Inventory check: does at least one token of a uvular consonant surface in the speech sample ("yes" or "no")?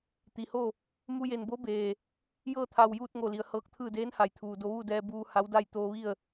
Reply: no